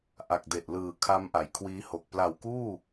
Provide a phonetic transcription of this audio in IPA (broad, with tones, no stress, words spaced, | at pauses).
ʔa˨˩k̚de˨˩ʔ lɯː˨˩kʰa˦˥mʔa˩˦j kʰwiː˦˥ho˨˩k̚ pla˨˩wkuː˥˩